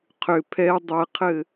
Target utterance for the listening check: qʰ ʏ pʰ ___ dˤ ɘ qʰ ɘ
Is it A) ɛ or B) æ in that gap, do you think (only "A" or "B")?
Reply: A